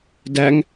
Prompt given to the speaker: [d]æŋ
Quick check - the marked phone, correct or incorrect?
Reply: correct